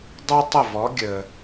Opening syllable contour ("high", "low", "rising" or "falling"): high